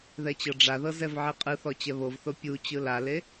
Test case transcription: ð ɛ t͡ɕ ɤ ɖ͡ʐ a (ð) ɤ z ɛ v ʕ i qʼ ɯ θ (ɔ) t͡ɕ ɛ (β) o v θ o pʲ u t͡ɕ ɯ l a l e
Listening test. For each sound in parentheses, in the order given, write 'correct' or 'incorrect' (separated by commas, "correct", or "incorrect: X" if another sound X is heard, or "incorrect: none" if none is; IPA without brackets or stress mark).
correct, correct, correct